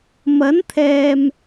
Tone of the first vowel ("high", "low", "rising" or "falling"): rising